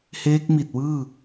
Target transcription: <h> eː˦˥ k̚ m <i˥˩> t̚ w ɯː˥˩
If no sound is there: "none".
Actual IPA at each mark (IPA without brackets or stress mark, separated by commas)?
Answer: h, i˨˩